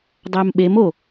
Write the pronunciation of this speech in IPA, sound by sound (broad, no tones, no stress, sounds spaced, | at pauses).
dˤ æ m ɓ e m o